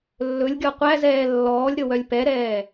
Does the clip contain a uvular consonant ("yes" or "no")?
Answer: yes